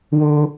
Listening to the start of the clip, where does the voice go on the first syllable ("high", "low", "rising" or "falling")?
high